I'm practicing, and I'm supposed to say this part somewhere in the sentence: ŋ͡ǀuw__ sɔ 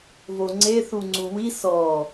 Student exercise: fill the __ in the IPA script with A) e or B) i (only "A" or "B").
B